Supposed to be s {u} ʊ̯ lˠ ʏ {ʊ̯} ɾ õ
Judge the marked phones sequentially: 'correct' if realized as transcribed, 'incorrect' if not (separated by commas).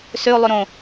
incorrect, incorrect